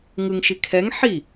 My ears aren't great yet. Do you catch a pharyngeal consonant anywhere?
yes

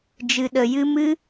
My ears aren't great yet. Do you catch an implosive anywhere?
yes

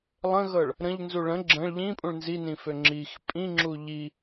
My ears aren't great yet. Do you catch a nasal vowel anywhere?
yes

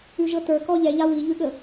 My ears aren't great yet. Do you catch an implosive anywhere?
yes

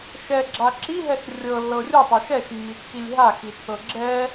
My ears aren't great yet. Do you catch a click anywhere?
yes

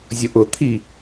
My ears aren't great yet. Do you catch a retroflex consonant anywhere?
no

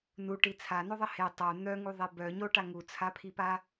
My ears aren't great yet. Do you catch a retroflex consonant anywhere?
yes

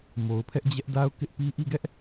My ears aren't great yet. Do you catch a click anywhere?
no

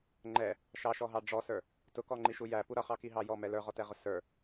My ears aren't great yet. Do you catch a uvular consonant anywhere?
yes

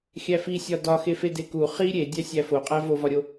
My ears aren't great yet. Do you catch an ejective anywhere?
yes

